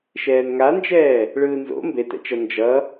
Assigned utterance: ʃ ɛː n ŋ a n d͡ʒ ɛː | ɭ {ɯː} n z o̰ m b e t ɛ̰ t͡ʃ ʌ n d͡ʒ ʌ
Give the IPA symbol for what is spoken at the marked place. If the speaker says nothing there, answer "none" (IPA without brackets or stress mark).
ɯː